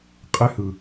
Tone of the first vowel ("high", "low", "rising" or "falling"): high